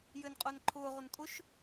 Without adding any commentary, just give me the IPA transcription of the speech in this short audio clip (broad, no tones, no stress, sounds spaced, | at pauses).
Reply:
j ɘː n qʼ ʊː n ǃʰ ʊː ʁ ʊ n tʼ ʊ ʃ